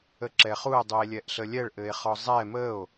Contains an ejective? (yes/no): no